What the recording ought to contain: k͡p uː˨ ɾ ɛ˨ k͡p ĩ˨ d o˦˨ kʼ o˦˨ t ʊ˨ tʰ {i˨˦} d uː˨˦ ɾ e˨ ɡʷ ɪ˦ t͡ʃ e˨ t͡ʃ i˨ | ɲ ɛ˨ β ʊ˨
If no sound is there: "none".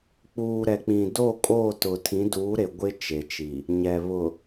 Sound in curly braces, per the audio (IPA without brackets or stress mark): ĩ˨˦